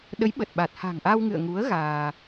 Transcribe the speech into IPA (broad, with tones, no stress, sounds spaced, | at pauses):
ɗ ə˨˦ j ɓ ə˨˩ t̚ ɓ a˨˩ t̚ h a̤˨˩ ŋ ʔ a˧ w ŋ ɨ̰˧˨ ə̯ ŋ u˨˦ ə̯ ɣ aː˧